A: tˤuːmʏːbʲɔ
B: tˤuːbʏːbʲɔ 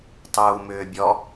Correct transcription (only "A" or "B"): A